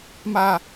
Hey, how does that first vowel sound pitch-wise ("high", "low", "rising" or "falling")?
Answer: low